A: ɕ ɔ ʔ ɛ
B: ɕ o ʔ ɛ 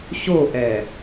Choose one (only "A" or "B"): B